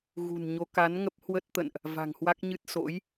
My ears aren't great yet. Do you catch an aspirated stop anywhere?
no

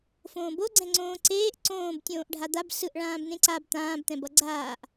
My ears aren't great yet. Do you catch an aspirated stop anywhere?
no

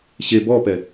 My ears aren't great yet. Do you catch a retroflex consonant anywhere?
no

